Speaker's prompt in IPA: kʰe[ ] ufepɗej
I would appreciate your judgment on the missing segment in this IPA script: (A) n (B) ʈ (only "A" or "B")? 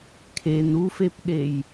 A